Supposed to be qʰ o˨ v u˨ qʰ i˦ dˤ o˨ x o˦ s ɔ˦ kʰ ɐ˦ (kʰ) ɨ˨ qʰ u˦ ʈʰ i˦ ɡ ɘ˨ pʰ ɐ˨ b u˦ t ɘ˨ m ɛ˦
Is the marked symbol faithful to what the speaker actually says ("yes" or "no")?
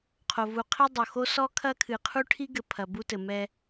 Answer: yes